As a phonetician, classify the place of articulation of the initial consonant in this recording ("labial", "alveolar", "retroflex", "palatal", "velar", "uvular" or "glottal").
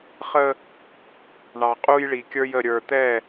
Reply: uvular